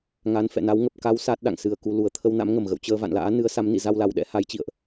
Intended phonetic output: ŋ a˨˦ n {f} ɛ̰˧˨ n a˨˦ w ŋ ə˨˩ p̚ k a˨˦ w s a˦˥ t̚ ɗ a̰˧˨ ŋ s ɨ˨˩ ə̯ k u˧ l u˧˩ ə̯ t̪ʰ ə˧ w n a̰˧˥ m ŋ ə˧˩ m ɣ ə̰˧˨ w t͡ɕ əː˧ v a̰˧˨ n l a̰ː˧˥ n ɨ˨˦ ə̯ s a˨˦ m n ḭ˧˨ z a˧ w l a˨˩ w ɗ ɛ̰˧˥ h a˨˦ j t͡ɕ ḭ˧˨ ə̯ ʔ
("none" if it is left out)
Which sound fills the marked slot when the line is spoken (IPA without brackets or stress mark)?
f